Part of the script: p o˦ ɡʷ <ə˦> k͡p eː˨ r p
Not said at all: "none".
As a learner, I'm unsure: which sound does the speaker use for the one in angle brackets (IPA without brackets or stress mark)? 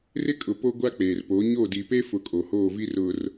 a˦